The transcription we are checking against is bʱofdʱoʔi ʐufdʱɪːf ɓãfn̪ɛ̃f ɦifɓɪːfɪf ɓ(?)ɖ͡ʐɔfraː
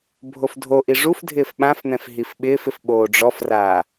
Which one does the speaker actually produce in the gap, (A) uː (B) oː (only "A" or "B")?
B